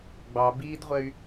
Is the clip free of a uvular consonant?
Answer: no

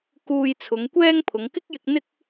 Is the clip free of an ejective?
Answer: yes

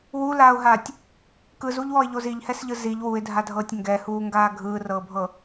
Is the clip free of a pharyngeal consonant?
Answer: yes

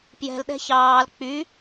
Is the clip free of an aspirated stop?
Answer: yes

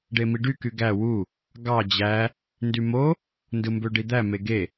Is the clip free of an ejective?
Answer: yes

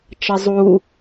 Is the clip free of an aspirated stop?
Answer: yes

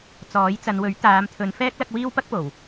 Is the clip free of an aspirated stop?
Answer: no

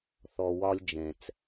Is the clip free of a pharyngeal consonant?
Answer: yes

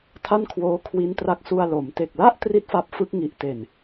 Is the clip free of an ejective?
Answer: yes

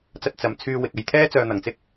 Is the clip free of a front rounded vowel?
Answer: no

